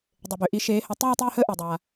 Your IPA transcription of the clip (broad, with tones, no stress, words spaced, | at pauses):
dˤe˩bø˩ʔi˨˦ ʃeː˨˦hə˨˦ tˤyː˥˧tˤyː˥˧həː˥˧ ʔɛ˩dˤaː˩